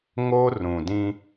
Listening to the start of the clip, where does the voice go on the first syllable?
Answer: high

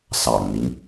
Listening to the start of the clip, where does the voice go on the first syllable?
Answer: low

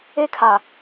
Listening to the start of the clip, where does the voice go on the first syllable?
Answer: high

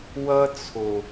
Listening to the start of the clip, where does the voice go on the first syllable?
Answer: high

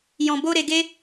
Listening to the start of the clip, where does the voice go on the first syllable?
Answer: low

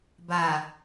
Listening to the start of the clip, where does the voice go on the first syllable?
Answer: low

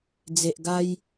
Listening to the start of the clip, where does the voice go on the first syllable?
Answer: low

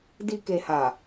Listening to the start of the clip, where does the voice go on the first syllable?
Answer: low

